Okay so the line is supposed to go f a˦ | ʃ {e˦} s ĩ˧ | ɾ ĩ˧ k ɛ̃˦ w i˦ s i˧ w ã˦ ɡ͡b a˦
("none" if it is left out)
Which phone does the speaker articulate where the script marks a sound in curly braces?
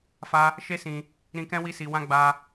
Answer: e˦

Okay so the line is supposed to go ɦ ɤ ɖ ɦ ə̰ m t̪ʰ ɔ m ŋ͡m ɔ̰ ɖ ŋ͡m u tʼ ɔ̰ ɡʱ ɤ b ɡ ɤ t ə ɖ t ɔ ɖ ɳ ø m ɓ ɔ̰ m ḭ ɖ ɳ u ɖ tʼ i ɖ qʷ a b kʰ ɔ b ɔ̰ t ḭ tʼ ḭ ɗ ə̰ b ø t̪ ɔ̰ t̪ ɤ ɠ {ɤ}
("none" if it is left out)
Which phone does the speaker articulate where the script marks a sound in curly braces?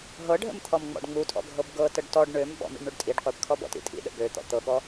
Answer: ɔ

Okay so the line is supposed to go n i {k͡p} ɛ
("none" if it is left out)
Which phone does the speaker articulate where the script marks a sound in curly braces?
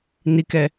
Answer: k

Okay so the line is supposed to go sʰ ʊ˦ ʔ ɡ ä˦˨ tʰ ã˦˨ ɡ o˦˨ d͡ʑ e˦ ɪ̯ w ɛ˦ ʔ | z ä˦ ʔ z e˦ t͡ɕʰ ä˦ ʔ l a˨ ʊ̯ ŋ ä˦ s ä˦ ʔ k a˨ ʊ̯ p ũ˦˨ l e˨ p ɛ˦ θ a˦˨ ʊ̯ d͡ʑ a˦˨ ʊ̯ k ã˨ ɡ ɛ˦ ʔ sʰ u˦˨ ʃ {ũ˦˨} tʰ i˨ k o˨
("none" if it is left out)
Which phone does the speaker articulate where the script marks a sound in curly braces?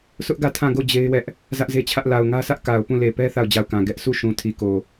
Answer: ũ˨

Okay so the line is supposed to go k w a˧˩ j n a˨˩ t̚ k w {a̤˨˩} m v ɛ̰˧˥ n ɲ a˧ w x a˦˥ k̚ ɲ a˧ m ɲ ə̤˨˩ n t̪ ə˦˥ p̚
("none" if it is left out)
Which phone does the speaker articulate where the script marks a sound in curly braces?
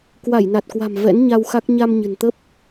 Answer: a̤˨˩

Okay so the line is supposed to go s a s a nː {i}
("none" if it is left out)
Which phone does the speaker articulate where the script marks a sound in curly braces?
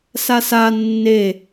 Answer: e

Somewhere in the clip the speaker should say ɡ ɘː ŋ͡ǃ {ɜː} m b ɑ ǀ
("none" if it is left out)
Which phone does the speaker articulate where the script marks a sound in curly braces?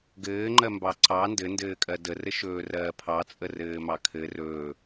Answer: ɜ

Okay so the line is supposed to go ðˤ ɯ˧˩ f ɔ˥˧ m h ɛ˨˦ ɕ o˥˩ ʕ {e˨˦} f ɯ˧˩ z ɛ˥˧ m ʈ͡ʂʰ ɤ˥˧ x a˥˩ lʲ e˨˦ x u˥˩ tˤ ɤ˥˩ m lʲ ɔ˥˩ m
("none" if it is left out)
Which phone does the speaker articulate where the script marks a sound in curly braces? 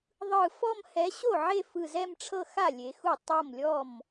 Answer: e˥˧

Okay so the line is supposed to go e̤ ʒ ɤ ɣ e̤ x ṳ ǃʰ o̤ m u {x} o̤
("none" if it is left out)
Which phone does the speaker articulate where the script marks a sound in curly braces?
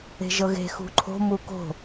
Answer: k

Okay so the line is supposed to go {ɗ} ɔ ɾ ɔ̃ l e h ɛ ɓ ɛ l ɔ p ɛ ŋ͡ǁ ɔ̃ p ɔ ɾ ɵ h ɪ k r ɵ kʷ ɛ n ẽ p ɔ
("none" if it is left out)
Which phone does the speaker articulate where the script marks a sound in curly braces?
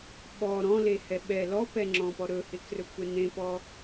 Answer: ɓ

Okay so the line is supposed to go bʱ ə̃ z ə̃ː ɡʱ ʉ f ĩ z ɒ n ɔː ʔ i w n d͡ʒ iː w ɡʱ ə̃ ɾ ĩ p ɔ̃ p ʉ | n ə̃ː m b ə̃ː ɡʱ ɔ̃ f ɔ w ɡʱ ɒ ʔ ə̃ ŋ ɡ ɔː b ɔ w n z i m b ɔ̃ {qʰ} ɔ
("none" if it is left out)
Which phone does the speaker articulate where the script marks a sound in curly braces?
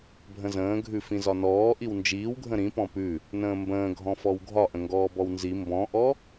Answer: ʔ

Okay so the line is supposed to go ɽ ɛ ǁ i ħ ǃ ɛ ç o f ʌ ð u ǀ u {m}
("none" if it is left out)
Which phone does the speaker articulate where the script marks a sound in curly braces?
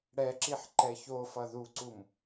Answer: m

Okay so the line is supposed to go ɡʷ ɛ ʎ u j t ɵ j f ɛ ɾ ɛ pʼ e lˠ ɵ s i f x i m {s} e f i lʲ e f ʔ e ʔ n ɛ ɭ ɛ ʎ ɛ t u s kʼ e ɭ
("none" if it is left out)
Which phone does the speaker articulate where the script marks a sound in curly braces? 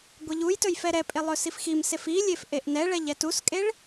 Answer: s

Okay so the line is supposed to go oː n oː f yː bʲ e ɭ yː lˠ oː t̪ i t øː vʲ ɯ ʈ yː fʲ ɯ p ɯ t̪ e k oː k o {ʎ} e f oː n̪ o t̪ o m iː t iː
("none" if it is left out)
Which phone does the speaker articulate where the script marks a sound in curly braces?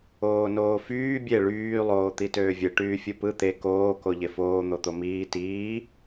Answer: ʎ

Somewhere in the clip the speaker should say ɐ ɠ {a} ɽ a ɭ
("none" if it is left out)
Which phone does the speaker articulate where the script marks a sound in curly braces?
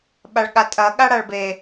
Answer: a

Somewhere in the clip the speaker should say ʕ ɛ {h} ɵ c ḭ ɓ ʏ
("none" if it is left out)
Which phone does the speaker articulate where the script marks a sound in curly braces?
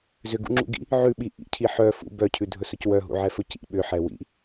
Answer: f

